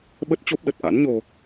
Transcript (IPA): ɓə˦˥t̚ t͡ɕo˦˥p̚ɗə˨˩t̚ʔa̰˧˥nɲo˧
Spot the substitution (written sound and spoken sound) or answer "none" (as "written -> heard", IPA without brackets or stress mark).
none